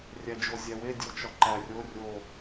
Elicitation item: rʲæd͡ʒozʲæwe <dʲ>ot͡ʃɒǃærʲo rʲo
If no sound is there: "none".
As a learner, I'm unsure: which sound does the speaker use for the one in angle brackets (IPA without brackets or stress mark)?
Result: dʲ